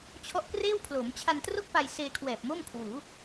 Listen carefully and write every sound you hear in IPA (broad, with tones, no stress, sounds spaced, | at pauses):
t͡ɕʰ ɔ˦˥ ʔ k r eː˥˩ w pʰ l oː˩˦ m t͡ɕʰ a˧ n t r o˥˩ k̚ p a˧ j s eː˧ kʰ w ɛː˨˩ p̚ m o˥˩ m kʰ w uː˩˦